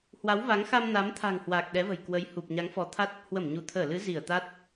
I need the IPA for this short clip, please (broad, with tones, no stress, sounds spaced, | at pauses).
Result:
h w a˨˦ w v a˨˦ ŋ x a˧ m n a˨˦ m t̪ʰ a̤˨˩ ŋ h w a˨˩ k̚ ɗ ɛ˨˦ v ə̤˨˩ j k w ə˨˦ j h u˨˩ p̚ ɲ a˨˦ ŋ f ɔ˨˦ t̪ʰ a˦˥ t̚ | h w ə˧˩ m ɲ u˧˩ t̪ʰ əː˧˩ l ɨ˨˦ z i˧˩ ə̯ t̪ a˦˥ t̚